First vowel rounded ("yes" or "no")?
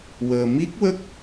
no